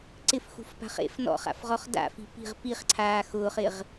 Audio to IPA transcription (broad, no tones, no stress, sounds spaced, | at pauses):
ǀ ɪ f x ṳ f p a̤ χ ḛ f n ɔ̰ χ a̰ f ʁ ɔ χ d a̰ f i̤ p i̤ ʁ p i χ ǀʰ aː x ʊː χ ɪ ʁ